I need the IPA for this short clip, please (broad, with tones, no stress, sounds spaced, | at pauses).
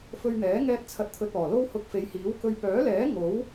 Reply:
f ɵ˧ ɥ n̪ ɛː˨˥ ŋ ɛː˧ t̚ t͡sʰ ɐ˨ t̚ t̪ʰ ɵ˨ t̚ ɔː˨˩ l o˥ w h ʊ˧ k̚ f e˨˧ j h iː˨˥ w k ɵ˧ ɥ p œː˨˥ l ɛː˨˥ ŋ o˨˥ w